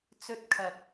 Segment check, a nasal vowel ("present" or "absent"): absent